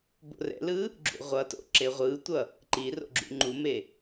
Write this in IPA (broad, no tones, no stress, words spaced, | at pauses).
bo̰rɛ̰lɯ | ɡ͡ǁṵʁʷʌto̰ ǁeʁʷɯtʷʌ | ǃiro̰ɡ͡ǁṵ ŋ͡ǃume